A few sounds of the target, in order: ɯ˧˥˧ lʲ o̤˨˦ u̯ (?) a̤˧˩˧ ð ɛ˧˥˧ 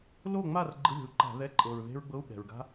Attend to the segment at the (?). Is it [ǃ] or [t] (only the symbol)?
ǃ